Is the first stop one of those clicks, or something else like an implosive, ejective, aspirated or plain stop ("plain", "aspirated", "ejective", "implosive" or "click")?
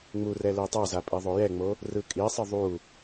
plain